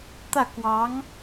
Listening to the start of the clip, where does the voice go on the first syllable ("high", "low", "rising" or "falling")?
falling